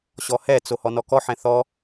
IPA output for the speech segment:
ɕ ɔ h ɛ t͡s o h ɔ n ɔ k ɔ ħ ɛ̃ θ ɔ

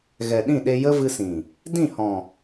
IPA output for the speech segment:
ɣ ɛ˨ ɗ ĩ˦˨ ɗ e˧ j ə˦ v ɨ˧ s ĩ˨ | d ĩ˦˨ h ɔ̃˨

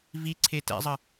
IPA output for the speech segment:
v i ǀʰ e t ɛ̰ zˤ ə

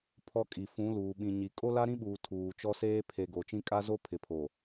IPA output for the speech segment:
pʰ ɔ˦ kʼ i˨ f ũ˨˦ l uː˨ ɓ ĩ˨ ɲ i˨ kʼ o˦ l a˦ ɾ ĩ˦ ɓ uː˨ tʰ uː˨ t͡ʃ ɔ˦ s eː˦ pʰ e˨ ɡ o˨ t͡ʃ ĩ˦ kʼ a˦ z o˦ pʰ ɪ˨ pʰ o˨

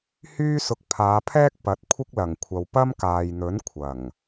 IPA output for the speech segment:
h yː˥ s ʊ˧ k̚ pʰ aː˨˧ pʰ ɛː˥ k̚ p ɐ˨˥ t̚ kʷʰ ɪ˥ k̚ l ɐ˨˩ ŋ kʷʰ ɐ˨ w p ɐ˥ m k aː˨ j n̪ ɵ˨˥ n kʷʰ ɐ˨˩ ŋ

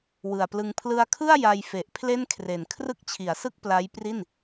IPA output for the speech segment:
w ɯ˨˩ a̯ p l ɯ˧ ŋ pʰ l ɯ˧ a̯ kʰ ɯ˥˩ a̯ j a˧ j f e˨˩ ʔ pʰ l e˥˩ n kʰ r e˨˩ n kʰ r ɯ˥˩ k̚ t͡ɕʰ i˩˦ a̯ s ɯ˥˩ k̚ p l a˦˥ j p r i˥˩ n

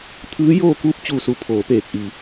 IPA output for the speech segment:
t̪ʰ ɯː˧˥ j oː˥˨ k uː˥˨ p̚ t͡ɕ uː˧˩ s u˩˧ pʰ oː˩˧ p eː˧˩ k̚ ʔ i˩

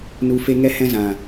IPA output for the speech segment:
n u˧ f e˦ ŋ ɛ˦ h ɛ̃˦ z ã˨

